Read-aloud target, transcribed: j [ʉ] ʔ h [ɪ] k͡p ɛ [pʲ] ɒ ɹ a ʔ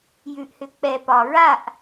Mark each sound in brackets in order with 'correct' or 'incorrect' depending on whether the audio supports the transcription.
correct, incorrect, incorrect

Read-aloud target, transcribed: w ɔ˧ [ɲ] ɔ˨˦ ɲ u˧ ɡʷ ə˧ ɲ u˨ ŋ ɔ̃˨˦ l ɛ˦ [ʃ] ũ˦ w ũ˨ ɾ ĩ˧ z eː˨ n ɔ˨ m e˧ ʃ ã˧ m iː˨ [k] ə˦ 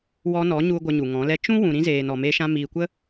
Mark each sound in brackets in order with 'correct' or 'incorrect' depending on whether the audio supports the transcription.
incorrect, incorrect, incorrect

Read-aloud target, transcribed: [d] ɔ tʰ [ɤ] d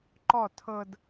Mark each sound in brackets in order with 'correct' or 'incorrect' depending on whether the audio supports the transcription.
incorrect, correct

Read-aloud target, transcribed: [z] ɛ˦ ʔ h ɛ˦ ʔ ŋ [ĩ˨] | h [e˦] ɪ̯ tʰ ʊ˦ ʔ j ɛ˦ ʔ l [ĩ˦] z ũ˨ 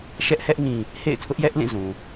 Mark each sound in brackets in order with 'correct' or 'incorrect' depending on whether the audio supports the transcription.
incorrect, correct, incorrect, incorrect

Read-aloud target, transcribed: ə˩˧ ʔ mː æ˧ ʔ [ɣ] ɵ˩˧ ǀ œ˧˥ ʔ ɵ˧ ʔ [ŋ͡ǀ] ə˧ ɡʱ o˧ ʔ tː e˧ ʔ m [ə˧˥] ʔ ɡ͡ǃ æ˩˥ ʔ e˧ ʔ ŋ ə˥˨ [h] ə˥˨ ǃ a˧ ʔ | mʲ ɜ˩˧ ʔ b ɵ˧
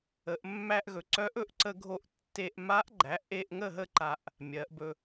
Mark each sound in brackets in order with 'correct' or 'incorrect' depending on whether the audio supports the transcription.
correct, incorrect, incorrect, incorrect

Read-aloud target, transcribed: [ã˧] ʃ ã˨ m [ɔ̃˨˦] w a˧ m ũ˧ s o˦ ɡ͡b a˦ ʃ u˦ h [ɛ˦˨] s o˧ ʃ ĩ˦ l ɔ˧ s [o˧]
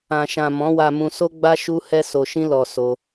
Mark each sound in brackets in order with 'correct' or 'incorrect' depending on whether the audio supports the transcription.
incorrect, correct, incorrect, correct

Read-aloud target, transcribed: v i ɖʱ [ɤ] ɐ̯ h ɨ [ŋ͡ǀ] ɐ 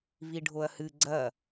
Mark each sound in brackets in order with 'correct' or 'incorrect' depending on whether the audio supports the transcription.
incorrect, incorrect

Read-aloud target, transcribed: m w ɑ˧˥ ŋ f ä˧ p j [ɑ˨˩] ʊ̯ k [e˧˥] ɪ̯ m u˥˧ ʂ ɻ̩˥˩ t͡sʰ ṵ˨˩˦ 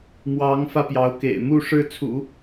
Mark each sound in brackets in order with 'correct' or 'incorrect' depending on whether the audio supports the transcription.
incorrect, incorrect

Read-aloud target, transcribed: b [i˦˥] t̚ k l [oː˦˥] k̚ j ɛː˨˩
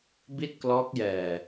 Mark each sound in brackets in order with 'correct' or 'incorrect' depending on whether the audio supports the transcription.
incorrect, incorrect

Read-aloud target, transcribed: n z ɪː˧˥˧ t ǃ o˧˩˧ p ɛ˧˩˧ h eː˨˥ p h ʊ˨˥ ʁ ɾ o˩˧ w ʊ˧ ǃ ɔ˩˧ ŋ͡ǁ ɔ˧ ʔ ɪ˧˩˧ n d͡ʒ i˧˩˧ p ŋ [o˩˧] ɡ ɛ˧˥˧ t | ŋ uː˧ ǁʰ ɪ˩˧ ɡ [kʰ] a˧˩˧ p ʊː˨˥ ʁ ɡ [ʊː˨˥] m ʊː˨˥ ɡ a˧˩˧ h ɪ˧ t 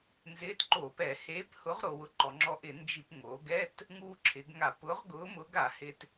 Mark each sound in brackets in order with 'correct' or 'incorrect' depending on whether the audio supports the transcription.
correct, incorrect, correct

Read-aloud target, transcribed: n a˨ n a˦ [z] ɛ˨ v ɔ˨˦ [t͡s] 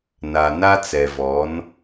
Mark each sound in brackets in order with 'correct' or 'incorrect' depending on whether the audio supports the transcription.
incorrect, incorrect

